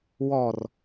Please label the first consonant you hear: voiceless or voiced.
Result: voiced